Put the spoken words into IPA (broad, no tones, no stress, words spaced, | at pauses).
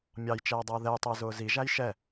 mʲɑjt͡ʃɛː dˤʊːðɛjtˤɪː zʊːziʒæj ʃɛ